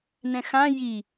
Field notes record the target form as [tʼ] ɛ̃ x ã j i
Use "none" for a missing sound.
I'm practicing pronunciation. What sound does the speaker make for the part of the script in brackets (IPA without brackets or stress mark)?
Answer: n